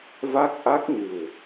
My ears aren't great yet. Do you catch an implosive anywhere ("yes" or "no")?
no